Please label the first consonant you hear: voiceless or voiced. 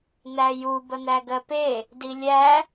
voiced